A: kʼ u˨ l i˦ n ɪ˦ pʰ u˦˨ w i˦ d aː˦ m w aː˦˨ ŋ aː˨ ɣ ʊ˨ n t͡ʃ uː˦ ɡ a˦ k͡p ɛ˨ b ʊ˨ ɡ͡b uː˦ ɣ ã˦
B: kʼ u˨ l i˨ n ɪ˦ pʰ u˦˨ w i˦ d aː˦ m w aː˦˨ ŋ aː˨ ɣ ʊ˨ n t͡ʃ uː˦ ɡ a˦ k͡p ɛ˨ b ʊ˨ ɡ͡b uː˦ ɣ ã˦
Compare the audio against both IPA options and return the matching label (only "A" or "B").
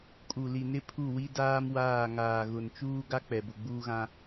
B